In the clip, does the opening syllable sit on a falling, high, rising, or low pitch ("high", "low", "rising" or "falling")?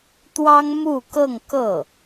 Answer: high